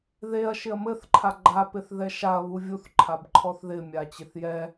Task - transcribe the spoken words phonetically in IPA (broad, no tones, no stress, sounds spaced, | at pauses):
ð e ɐ̯ ʃ ɪ ɐ̯ m ɘ θ ǃʰ a ɡ͡ǃ a p ɪ θ ð ɛ ʃ a ɐ̯ β u vʲ u θ ǃʰ a b ǃʰ ɔ θ ð ɪ mʲ a t͡ɕ ɪ θ j ɛ